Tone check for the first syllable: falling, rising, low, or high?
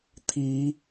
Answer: rising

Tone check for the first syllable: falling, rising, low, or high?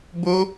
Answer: high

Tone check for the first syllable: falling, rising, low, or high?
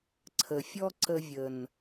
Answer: low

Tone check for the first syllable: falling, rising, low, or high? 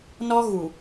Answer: high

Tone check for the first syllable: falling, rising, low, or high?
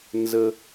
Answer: high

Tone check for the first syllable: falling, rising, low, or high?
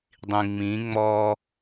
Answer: low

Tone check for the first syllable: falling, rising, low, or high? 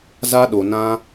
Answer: high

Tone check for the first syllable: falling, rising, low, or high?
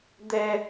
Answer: high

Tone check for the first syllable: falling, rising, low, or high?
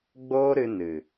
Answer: high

